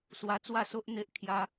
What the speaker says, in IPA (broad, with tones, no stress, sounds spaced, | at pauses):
s w a˧ t͡s w a˥˧ s o˦ ʔ n̪ e˦ ʔ kʰ j a˧